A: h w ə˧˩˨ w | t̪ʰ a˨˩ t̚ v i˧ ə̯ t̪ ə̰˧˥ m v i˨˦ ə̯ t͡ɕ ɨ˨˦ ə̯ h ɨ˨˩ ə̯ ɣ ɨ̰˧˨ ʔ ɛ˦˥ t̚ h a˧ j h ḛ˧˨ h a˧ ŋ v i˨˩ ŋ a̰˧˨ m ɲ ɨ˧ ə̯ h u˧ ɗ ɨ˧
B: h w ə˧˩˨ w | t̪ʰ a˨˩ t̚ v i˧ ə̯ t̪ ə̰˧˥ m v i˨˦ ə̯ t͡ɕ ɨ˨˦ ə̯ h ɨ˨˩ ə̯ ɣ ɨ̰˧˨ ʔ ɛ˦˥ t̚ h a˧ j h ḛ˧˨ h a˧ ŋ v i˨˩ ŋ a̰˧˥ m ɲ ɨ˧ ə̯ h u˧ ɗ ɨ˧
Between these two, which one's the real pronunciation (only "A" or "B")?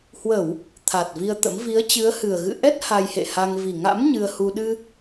B